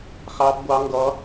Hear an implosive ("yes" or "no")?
no